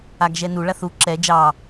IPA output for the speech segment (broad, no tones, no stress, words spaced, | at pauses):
aɡʒɛnu ɭaθu ǁɛ d͡ʒɑ